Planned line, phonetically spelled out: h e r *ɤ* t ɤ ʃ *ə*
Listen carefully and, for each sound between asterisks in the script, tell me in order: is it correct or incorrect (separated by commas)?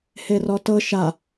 incorrect, incorrect